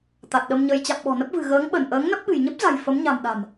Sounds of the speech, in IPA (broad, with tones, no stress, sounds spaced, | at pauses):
t̪ a˨˩ t̚ ɗ ə˧ m ɲ ə˧ j t͡ɕ a̰˧˨ m ɓ ɔ̤˨˩ n ə˦˥ p̚ v ɨ̤˨˩ ɣ əː˨˦ ŋ ɓ ə˧˩ n ʔ əː˨˦ ŋ n ə˦˥ p̚ ɓ ɨ̤˨˩ j ɲ ə˦˥ p̚ z a̤˨˩ j f ə˨˦ m ɲ a̤˨˩ m ɗ a̤˨˩ m